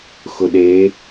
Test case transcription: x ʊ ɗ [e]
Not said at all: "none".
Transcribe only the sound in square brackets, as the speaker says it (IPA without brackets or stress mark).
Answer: e